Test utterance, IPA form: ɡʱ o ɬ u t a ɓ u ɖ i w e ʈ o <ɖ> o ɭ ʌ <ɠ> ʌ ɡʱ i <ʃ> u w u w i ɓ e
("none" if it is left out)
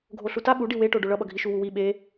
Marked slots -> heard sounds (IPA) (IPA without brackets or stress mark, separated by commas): ɖ, ɓ, ʃ